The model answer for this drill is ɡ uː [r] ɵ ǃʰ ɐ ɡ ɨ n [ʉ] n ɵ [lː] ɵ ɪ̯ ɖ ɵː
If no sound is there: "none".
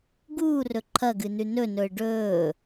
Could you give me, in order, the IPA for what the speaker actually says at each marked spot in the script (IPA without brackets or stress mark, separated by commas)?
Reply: r, ʉ, n